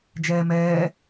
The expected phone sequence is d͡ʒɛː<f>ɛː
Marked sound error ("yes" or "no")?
yes